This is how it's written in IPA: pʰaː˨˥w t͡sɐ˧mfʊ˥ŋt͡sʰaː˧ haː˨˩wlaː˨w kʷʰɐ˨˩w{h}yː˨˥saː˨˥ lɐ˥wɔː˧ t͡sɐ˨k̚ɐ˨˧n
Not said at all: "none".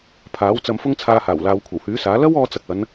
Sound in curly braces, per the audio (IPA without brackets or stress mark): h